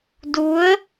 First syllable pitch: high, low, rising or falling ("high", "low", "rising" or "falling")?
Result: rising